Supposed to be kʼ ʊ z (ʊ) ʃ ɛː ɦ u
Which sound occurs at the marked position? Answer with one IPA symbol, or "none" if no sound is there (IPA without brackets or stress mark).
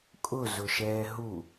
ʊ